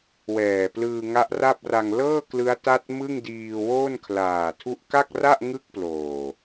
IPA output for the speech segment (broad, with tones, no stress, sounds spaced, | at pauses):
w ɛː˨˩ p l ɯː˧ ŋ a˦˥ ʔ r a˥˩ p̚ r a˧ ŋ l ɤː˥˩ k l ɯ˦˥ a̯ t a˥˩ t̚ m ɯ˥˩ ŋ d iː˧ w o˥˩ n kʰ l aː˨˩ tʰ u˦˥ ʔ k a˥˩ k̚ r a˥˩ ʔ ŋ ɯ˥˩ k̚ p l oː˨˩